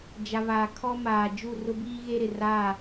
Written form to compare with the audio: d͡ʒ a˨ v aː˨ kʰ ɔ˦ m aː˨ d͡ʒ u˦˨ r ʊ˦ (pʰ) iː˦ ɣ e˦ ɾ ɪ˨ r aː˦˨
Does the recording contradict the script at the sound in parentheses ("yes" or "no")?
yes